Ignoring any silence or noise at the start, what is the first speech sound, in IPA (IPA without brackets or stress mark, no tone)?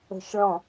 ə̤